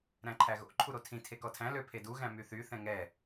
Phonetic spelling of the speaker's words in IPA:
ɾ æ̃ ǃʰ æ ɣ o̰ ǃʰ u ɾ o tʰ ĩ tʰ e k ɔ tʰ æ̃ l ø pʰ e d u ɣ æ̃ m y θ y θ ɛ̃ ŋ ɛ

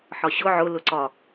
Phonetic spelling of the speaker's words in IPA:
ħ ɒ ɕ ʊ ʕ ʊ l ʊ ǀ ɒ

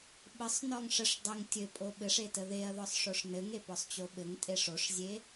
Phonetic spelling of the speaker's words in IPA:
ɓ ə sˤ n ɔ ŋ ʂ ə ʂ dˤ ə ŋ tʲ ɘ pʼ o ɓ ɘ ʂ e t ə ð e ɐ̯ ð ɔ sˤ ʂ o ʂ n ɘ ŋ e p ɔ sˤ t͡ɕ o ɓ ɘ ŋ tʼ e ʂ o ʂ zʲ e

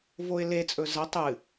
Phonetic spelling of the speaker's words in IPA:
v o ɪ̯ l e t͡sʼ ɵ z ɐ tˤ ɨ

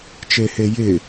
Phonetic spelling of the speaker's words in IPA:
t͡ʃ e h e j ɪ

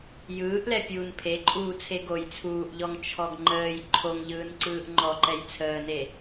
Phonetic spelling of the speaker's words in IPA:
j ɯː ʔ l ɛ pʲ uː n pʰ e ǃʼ uː t͡sʰ e ɡ o j t͡sʰ uː ʔ ʎ ɔ ŋ t͡ʃʰ ɔ ɡ ŋ͡ǃ əː j ǃʰ o ŋ ʎ ɯː n ǀ ɯː ʔ ŋ͡ǃ ɔ ǃ ɛ j t͡sʰ əː n e

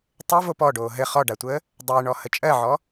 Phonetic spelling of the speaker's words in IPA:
tˤ ɘ v o p ɔ ɖ oː ɦ ɘ χ ɔ ɖ a tʷ əː | dˤ ɘː ɳ ɔ h ə t͡ʃʼ ɜ ʕ ɔ

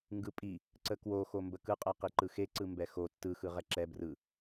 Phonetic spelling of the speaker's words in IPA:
ŋ ɡ ɯ pʼ i | ǀ ə k w o x o m b ə k ɯ qʼ ɛ q i ǃ ɯ x e ǀ ɯ m b ɛ x o tː ɯ x ɯ ʁ ɛ ǁ ɛ b r ɯ

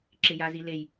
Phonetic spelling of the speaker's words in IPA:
ǁ ɪ j a z i l e j

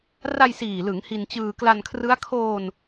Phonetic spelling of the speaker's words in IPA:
r a˧ j s iː˨˩ l ɯ˩˦ ŋ h i˧ n t͡ɕ ɯː˧ k l a˧ n kʰ r ɯ˦˥ a̯ kʰ oː˧ n

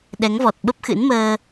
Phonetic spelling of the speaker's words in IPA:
ɗ ɛ˨˦ ŋ v ɔ˨˩ t̚ ɓ ə˦˥ p̚ x ɨ̰˧˥ n m əː˧

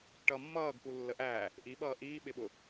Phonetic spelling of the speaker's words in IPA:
ʈ ʌ mː ʌː ɡ k u lː ə ʔ æ | ʔ i ɓ ʌː ʔ iː ɓ ɪ ɓ ʊ

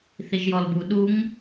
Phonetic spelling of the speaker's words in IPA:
θ i ʒ j ɔ l b u ɗ u ŋ

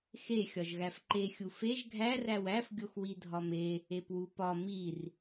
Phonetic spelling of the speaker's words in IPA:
x e xʲ ɒ ʒ ɣ æ f ǃ e xʲ u f e ʒ ɡʱ æ r æ w æ f ɡʲ o x w i dʱ ɒ m e | e p w u p ɒ m i r

